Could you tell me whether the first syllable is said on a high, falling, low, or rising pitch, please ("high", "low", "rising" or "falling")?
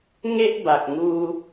high